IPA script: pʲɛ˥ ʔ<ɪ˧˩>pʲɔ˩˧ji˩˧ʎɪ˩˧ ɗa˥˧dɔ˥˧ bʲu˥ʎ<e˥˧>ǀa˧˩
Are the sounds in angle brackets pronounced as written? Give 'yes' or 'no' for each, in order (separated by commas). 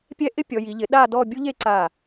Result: no, yes